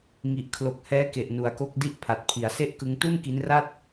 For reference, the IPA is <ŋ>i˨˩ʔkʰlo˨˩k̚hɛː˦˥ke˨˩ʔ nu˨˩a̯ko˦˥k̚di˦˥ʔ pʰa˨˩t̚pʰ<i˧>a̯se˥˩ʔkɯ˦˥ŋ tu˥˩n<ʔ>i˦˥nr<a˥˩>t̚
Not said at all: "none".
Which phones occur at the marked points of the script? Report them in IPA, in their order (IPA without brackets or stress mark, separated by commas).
ŋ, i˩˦, k, a˥˩